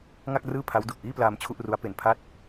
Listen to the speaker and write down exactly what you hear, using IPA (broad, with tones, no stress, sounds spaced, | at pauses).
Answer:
ŋ a˥˩ k̚ r ɯː˥˩ pʰ a˦˥ w d u˨˩ k̚ ʔ iː˥˩ p l aː˧ m t͡ɕʰ u˥˩ ʔ r u˦˥ a̯ p e˧ n pʰ a˦˥ t̚